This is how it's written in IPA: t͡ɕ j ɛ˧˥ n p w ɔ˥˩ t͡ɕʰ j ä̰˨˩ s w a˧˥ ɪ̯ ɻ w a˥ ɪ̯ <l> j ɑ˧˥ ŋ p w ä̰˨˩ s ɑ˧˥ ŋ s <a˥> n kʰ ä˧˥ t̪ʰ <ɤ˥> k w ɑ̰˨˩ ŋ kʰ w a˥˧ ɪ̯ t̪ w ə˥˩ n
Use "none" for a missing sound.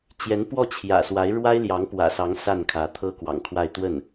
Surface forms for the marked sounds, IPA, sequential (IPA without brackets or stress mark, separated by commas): l, a˥˩, ɤ˥